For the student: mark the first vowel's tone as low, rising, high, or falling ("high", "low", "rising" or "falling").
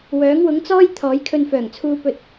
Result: rising